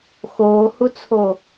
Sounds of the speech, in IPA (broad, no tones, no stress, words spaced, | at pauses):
xoːhut͡sʰo